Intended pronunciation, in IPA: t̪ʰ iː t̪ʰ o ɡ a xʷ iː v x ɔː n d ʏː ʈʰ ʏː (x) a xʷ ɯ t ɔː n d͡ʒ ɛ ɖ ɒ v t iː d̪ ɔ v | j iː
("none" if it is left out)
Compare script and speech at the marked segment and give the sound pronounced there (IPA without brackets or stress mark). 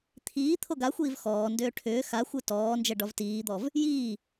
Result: x